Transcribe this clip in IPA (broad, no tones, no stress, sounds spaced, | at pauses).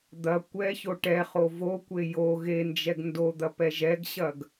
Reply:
d̪ ɐ kʷ ɛ ç o ʈ ɛ χ o v o kʷ e j o ɣ e n d͡ʒ ɛ ɡ n d o d̪ ɐ p ɛ ʒ ɛ ɡ ɕ ɐ ɡ